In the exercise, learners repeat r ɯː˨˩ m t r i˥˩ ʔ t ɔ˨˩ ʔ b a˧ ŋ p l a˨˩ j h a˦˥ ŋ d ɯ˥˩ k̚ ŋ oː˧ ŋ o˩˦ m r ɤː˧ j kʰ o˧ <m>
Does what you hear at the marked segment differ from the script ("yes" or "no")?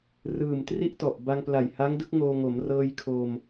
no